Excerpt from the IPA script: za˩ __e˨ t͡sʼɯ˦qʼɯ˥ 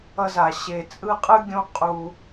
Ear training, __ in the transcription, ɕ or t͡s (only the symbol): ɕ